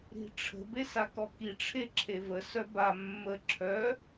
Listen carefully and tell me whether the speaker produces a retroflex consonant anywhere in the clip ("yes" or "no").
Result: yes